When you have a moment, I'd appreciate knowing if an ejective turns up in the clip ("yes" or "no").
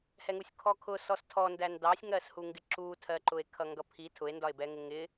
no